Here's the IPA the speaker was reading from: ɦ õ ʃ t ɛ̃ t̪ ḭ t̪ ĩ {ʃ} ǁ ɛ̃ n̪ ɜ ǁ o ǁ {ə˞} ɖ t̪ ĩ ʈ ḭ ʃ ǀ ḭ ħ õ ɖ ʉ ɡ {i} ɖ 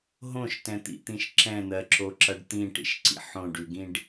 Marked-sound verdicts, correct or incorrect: correct, incorrect: ʌ, incorrect: ĩ

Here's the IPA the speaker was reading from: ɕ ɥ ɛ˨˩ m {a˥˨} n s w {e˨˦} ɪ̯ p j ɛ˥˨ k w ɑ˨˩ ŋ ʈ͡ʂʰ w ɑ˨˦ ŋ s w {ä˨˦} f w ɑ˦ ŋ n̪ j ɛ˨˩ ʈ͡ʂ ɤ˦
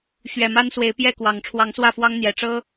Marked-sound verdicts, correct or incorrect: incorrect: a˦, correct, incorrect: ä˥˨

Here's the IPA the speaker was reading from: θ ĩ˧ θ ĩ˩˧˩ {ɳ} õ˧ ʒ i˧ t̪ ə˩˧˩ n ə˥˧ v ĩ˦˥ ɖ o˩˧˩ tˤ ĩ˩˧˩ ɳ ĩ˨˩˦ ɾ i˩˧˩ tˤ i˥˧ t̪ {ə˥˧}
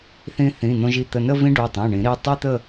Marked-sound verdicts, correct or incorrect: incorrect: n̪, correct

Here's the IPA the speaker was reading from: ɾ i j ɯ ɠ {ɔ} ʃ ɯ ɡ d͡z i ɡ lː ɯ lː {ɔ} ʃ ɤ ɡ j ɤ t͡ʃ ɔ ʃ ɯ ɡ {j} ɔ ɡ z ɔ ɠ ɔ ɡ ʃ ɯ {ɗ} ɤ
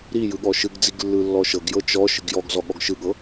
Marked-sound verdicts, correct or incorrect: correct, correct, correct, incorrect: ɠ

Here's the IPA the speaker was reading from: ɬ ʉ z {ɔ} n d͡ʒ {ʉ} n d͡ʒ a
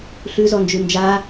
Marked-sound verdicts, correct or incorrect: correct, correct

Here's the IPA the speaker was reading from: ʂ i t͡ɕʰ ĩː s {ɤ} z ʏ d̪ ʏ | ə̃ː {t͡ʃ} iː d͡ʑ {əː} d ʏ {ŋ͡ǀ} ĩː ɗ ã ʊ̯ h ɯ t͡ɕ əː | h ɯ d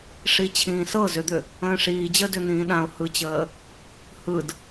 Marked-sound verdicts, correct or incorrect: correct, incorrect: ʂ, correct, incorrect: n̪

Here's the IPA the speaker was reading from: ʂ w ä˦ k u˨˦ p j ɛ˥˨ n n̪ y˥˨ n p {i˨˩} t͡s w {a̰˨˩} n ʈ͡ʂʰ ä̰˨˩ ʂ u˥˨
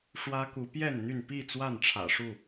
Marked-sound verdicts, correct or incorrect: incorrect: i˥˨, incorrect: a˥˨

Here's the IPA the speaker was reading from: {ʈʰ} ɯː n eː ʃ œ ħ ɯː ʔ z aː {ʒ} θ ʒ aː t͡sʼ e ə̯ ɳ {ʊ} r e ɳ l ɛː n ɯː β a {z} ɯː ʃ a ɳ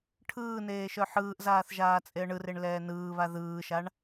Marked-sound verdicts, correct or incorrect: correct, incorrect: none, incorrect: ɯ, incorrect: ð

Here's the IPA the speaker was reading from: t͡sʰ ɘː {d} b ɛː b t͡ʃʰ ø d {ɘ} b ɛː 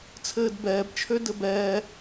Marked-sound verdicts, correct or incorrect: correct, correct

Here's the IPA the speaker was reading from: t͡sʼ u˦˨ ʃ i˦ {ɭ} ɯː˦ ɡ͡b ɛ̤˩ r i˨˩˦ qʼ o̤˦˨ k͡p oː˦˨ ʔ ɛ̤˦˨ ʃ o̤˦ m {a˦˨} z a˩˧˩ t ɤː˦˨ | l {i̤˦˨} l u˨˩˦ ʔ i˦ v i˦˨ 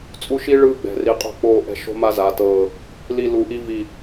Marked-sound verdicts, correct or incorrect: correct, incorrect: a˦, incorrect: i˦˨

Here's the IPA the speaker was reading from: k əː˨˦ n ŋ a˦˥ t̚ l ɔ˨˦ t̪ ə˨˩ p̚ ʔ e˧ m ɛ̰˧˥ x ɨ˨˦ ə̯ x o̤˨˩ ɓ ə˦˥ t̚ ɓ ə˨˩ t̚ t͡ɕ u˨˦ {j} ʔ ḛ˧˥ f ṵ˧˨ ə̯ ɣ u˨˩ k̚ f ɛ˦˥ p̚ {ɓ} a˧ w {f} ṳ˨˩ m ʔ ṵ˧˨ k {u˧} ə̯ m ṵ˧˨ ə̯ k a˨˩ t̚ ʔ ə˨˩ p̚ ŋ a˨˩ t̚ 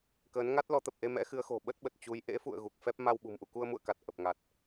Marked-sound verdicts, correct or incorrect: correct, incorrect: m, incorrect: ɓ, correct

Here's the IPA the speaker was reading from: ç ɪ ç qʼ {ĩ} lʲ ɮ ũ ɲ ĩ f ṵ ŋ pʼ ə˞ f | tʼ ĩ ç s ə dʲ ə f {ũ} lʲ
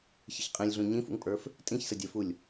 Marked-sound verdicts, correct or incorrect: correct, incorrect: u

